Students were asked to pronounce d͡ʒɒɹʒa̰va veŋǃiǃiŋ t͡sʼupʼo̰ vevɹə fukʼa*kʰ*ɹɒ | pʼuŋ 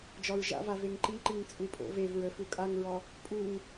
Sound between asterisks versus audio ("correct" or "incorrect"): incorrect